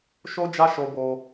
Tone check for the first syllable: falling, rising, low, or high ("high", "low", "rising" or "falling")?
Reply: high